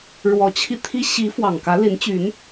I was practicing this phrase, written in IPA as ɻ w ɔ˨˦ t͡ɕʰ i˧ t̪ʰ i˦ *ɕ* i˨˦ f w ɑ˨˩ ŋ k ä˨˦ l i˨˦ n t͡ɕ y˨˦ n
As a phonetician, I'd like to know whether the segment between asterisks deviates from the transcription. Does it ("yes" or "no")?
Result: no